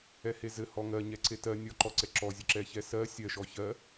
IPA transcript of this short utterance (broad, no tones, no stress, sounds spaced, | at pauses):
ɛ h e z ɘ h ɔ ŋ ɜ ɲ ɛ ǀ e t ɜ nʲ ɔ ǃ ɔ ǀ ɛ ǁ ɔ zʲ ɘ ǁ ɛ ç ɛ s ɜ sʲ ɜ ʃ ɔ ç ɜ